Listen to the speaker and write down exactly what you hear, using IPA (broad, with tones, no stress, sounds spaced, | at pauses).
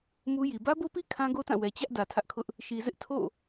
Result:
m u˦ j i˨ b ä˦ b o˦ p i˦ kʰ ã˦ ɡ o˦ t ã˦˨ w ɛ˨ t͡ɕ ä˦ ʔ d ä˨ tʰ ä˦ ʔ kʰ ʊ˦ ʔ | ʃ i˨ z ɪ˦ ʔ tʰ o̰˦˨